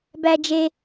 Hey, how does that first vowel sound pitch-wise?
high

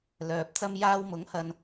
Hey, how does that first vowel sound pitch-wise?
low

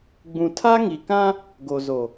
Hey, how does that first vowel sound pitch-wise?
low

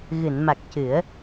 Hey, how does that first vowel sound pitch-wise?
low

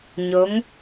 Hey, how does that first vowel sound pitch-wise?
rising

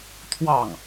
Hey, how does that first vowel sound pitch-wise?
falling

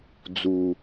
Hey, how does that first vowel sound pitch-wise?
low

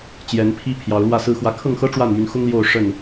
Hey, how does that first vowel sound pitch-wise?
rising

